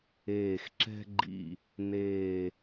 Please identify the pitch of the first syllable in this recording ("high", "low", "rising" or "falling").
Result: low